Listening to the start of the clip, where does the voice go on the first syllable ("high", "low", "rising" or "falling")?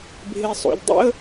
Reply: low